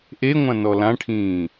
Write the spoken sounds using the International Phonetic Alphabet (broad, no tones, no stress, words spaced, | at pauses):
ʔeŋʷã nɔlãʈʰĩː